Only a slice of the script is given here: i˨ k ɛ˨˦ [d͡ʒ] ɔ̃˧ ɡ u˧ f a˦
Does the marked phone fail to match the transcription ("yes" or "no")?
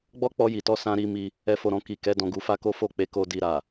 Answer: yes